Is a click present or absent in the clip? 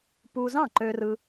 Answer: present